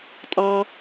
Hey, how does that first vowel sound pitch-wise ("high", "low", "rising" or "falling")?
high